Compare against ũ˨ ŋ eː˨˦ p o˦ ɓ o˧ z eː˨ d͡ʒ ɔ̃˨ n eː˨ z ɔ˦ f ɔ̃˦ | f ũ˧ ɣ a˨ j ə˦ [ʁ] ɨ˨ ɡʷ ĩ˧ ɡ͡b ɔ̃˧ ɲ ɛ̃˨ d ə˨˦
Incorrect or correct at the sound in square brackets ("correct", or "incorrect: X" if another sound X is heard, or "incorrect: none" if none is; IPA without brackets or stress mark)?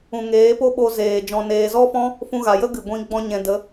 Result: incorrect: ɡ